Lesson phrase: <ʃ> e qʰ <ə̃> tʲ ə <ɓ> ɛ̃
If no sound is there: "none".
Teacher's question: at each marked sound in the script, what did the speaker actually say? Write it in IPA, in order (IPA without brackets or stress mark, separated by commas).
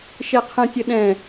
ʃ, ə̃, ɗ